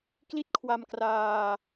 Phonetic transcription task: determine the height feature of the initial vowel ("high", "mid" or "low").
high